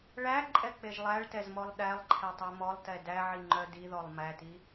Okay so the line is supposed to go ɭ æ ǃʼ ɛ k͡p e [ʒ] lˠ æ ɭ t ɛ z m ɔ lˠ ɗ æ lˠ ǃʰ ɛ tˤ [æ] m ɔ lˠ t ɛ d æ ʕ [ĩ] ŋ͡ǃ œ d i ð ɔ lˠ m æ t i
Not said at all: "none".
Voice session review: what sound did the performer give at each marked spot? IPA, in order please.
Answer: ʒ, æ, i

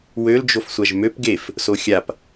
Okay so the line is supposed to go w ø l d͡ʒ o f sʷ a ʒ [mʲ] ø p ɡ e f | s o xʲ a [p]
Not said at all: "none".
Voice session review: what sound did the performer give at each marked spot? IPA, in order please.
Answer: m, p

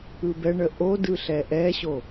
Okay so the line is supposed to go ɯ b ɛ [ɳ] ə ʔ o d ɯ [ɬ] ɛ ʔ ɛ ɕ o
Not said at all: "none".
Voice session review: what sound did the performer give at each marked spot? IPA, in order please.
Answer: ɳ, ɬ

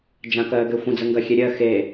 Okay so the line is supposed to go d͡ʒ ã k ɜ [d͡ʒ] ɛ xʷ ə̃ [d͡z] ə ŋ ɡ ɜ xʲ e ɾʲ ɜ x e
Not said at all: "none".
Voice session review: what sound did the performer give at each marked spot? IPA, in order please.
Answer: ɡ, d͡z

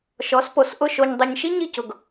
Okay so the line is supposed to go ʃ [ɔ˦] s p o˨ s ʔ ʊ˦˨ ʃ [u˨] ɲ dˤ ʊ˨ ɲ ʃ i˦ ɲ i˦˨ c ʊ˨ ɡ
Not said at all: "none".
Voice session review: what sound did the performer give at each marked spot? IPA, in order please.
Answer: ɔ˨˦, o˨

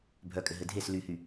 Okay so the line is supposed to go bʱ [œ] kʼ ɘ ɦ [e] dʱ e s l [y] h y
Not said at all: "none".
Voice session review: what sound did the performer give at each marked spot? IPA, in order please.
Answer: œ, ɘ, y

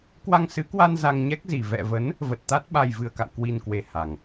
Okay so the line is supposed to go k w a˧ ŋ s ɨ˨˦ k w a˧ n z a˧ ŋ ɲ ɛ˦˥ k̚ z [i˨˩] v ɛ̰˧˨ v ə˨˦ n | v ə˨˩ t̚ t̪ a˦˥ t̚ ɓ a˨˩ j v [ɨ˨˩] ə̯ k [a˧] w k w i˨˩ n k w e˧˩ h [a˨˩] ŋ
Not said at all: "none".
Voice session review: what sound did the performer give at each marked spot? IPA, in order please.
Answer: i˨˩, ɨ˨˩, a̰˧˨, a˨˩

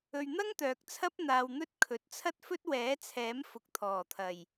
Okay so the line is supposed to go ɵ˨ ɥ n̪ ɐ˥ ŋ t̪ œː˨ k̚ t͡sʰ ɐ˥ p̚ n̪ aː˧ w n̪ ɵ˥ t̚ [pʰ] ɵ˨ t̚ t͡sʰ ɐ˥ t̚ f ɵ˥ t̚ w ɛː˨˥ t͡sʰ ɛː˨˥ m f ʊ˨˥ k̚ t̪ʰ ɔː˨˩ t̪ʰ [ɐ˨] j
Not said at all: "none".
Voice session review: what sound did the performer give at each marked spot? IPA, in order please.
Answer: kʰ, ɐ˨˩

